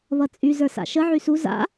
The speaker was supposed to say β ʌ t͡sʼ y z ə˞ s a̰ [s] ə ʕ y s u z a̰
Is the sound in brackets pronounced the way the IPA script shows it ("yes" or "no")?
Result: no